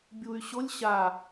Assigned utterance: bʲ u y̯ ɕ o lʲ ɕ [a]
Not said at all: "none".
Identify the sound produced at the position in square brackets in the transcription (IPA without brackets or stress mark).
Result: a